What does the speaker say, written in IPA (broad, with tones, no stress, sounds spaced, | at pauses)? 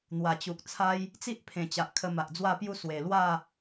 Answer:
n̪ w a˨˩ t͡ɕ u˨ k̚ t͡sʰ a˦ j | t͡s i˦ ʔ pʰ ẽ˨˩ t͡ɕ a˨ ʔ kʰ ə˧ m a˨ ʔ d͡z w a˥˧ p j u˥˧ s w e˨˩ l w a˥˧